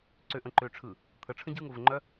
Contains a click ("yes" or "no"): yes